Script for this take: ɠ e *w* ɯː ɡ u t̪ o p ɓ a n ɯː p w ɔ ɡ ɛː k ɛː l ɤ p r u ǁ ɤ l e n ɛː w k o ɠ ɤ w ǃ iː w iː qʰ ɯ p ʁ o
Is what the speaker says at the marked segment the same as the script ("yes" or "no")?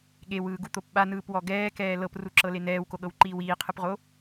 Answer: yes